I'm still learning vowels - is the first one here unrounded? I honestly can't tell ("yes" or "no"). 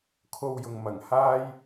no